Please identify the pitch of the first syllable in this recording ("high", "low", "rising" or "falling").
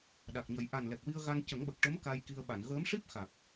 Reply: low